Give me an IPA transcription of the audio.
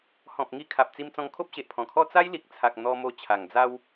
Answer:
h ɔ̃˨ p̚ ŋ i˧ kʰ a˨ p̚ t͡s i˧ m t͡s ɔ̃˧ ŋ kʰ o˦ p̚ ɕ e˨ ʔ pʰ ɔ̃˨˩ kʰ ɔ˥˧ t͡s a˦ j l i˨ k̚ t͡sʰ a˨ k̚ n̪ ɔ˧ m o˧ t͡ɕʰ a˨˩ ŋ d͡z a˦ w

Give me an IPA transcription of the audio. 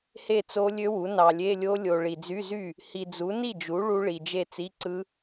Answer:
h e˥˩ t͡s o˦˥ lʲ ø˦˥ w u˩˥ n ɑ˨ lʲ e˧˥˧ lʲ o˦˥ lʲ o˨ ɭ i˨ d͡z y˧˥˧ z y˥˩ | h i˨ d͡z u˩˥ n i˥˩ d͡ʒ u˩˥ ɭ u˦˥ ɭ i˨ d͡ʒ e˥˩ t͡s i˧˥˧ ǀ ɯ˦˥

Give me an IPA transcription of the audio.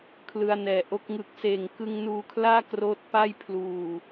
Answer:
kʰ l ɯ˧ a̯ n ɛː˨˩ ʔ o˦˥ k̚ ŋ ɯ˨˩ k̚ s eː˨˩ ŋ k ɯ˧ ŋ n uː˧ kʰ l aː˥˩ k r oː˥˩ t̚ p a˥˩ j pʰ l uː˨˩

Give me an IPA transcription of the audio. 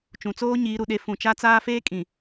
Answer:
t͡ʃ ũ˨ t͡s oː˦ ɲ iː˨˦ ɾ u˨ ɗ e˦ f ũ˨ t͡ʃ a˦ t͡s aː˦ f eː˦ kʼ ĩ˨

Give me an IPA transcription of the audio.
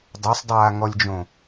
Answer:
dˤ œ sˤ dˤ aː ŋ ɔ lʲ d͡ʒ õ

